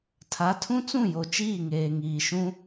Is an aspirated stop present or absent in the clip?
present